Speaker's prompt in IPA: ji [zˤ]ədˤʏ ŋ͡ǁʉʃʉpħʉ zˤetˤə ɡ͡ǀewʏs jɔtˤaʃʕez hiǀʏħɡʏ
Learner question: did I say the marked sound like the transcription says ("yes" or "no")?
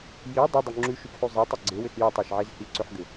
no